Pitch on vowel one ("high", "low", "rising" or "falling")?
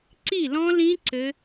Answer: falling